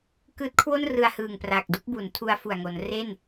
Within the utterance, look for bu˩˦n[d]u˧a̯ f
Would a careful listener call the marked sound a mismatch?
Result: yes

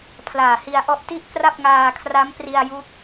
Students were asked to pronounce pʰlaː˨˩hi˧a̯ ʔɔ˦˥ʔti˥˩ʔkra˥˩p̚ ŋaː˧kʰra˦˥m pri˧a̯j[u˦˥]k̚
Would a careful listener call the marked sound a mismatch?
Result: no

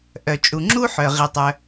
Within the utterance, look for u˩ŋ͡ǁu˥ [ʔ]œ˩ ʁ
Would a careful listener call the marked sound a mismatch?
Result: yes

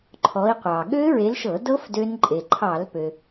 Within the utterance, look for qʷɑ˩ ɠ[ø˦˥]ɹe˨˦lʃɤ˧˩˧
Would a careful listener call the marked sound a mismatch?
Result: no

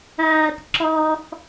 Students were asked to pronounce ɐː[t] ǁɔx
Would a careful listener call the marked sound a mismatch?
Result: no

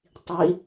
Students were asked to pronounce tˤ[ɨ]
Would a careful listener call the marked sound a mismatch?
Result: yes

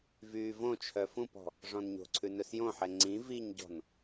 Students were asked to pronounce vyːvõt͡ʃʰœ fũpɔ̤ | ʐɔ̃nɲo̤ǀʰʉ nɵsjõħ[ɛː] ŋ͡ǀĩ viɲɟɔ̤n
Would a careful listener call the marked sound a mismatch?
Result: yes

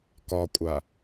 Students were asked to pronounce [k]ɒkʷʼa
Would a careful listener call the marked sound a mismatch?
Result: no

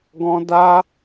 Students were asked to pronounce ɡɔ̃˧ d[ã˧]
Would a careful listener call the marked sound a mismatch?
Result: yes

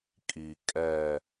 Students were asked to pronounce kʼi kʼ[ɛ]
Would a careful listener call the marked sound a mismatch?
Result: no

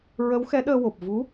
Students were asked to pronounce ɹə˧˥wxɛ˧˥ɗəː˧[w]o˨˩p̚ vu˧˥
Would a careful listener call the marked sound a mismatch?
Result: no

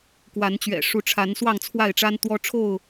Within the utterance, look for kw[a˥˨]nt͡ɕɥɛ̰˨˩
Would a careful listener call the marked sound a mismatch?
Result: yes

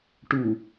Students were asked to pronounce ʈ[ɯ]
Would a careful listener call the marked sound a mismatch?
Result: yes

